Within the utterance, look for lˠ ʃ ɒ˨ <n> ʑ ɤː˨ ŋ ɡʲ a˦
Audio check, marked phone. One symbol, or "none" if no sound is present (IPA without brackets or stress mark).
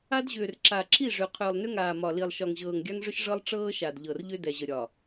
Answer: ŋ